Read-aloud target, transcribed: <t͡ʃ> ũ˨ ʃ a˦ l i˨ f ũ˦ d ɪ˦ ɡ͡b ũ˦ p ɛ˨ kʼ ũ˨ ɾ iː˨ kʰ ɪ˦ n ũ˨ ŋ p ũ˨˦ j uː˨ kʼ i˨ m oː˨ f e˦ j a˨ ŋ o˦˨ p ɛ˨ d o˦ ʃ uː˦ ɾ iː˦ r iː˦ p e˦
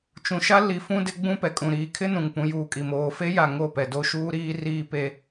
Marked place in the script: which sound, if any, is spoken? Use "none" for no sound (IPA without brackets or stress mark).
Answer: t͡ʃ